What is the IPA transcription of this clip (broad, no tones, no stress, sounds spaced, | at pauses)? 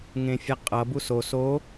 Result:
ŋ ẽ fʲ a qʼ ʌ b u s o s o